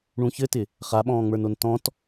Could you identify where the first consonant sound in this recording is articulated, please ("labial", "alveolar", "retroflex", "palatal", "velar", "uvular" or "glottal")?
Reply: retroflex